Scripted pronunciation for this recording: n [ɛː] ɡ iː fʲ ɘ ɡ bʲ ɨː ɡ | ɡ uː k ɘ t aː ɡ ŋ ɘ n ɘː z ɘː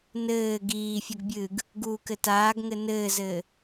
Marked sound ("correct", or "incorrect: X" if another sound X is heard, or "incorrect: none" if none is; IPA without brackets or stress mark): incorrect: ɘː